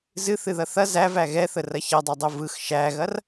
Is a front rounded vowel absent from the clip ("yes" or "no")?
yes